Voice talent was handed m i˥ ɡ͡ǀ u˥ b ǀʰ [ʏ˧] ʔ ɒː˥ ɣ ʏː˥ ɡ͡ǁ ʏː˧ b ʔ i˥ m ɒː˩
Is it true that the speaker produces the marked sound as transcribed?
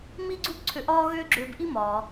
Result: yes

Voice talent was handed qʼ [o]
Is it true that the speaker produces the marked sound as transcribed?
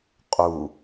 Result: no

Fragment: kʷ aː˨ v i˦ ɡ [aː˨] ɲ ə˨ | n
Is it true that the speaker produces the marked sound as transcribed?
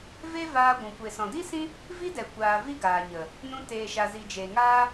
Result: yes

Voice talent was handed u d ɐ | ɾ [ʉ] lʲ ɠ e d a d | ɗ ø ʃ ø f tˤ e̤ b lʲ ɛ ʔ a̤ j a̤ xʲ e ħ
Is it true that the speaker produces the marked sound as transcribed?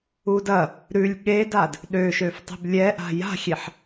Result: yes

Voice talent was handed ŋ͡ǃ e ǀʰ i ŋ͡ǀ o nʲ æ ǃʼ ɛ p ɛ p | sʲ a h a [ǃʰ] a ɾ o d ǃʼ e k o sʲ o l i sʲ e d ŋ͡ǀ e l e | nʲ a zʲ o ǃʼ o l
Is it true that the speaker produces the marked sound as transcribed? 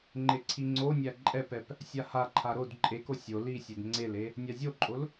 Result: yes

